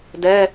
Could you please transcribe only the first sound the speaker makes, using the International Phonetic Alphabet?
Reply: d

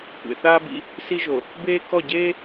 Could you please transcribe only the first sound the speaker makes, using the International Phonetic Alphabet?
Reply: kʷ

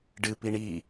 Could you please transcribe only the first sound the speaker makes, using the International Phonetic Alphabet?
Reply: ɖ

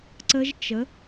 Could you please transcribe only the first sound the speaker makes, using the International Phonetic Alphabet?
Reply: ǀ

